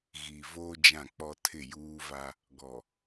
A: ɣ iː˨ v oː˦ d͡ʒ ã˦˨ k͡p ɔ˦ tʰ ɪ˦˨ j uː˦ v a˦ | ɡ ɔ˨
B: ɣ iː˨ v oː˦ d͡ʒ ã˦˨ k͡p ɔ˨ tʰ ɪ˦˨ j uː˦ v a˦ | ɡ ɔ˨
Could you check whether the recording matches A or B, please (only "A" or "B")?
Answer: A